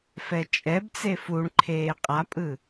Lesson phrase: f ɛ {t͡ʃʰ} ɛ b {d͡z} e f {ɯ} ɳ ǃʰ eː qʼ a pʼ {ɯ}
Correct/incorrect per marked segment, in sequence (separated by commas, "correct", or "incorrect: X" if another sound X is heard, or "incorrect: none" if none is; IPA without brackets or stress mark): incorrect: t͡ʃʼ, incorrect: t͡s, incorrect: u, correct